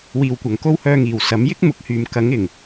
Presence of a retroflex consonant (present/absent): absent